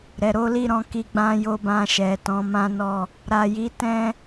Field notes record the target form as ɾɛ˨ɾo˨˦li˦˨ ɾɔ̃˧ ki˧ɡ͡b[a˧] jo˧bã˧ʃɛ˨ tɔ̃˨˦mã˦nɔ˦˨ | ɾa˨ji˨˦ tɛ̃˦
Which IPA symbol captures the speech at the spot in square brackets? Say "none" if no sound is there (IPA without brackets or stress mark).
ã˧